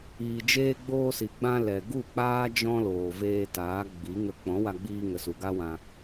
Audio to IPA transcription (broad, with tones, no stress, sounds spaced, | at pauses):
iː˨ d͡ʒ eː˧ ɡ͡b oː˧ s i˨ ɡ͡b ã˧ l ɛ˨ ɡ u˦˨ k͡p aː˦ d͡ʒ ɔ̃˦ l oː˨ v eː˧ t aː˨˦ ɡ͡b i˨˦ ŋ ə˧ k͡p ɔ̃˨˦ w a˧ ɡ͡b iː˧ ŋ ə˨ s u˨ ɡ a˦ w ã˧